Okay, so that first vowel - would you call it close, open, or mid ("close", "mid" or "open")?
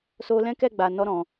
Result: mid